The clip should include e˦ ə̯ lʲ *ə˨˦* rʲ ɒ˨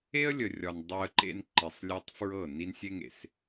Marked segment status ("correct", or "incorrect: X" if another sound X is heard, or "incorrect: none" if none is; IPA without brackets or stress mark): incorrect: ə˨